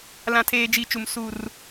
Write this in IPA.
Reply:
l ã˦ tʰ eː˦ d͡ʒ i˦˨ t͡ʃ u˨ m s u˨ r

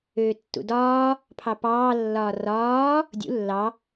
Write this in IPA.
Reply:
øː tː ṵ d ɒː | pʰ ɑ p ɑː lː ɒː r ɒː | dʲ ṵ lː ɑ

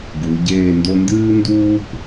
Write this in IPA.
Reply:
ɡ u˩˧ ɟ eː˥˧ n d o˥ n d ɨː˥ n d uː˥ p

